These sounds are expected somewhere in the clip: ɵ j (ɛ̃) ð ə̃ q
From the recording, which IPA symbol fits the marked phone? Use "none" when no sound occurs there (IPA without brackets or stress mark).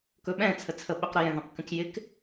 ɛ̃